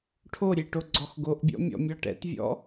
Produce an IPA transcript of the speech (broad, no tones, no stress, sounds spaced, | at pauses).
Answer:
ʈʰ o ɾʲ e ʈ o ɡ͡ǀ ɔ x ɡ o ʔ bʲ ɔ̰ mʲ ɔ̰ mʲ ɒ ʈ ɛ̰ t vʲ ɔ̰